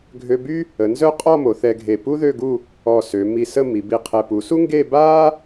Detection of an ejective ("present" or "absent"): present